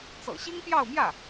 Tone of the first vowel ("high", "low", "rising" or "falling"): low